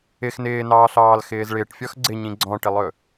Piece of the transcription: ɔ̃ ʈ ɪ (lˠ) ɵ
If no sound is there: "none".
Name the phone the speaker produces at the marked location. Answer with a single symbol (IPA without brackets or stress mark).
lˠ